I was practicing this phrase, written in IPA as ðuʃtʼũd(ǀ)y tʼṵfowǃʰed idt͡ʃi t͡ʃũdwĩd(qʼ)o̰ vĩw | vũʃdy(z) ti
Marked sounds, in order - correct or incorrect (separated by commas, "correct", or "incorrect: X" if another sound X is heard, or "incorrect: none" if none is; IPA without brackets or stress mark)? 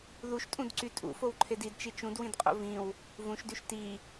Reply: correct, correct, incorrect: ʃ